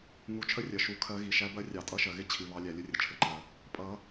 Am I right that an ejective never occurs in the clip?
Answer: no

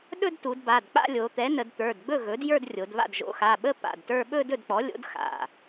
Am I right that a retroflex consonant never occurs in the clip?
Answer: yes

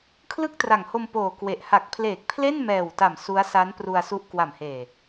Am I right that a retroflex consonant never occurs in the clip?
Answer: yes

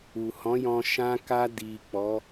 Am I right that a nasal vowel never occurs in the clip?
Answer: no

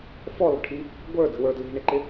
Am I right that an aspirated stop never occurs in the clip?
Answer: no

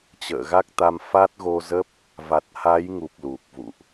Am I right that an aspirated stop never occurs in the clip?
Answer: yes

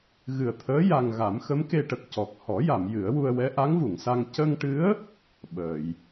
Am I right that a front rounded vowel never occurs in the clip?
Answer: yes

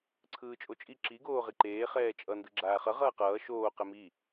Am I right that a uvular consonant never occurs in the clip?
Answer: no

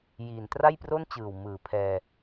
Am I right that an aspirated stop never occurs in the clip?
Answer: no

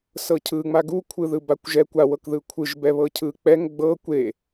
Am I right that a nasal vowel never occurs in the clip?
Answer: yes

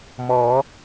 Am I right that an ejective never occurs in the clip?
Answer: yes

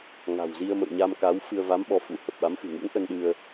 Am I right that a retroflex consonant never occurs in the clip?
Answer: yes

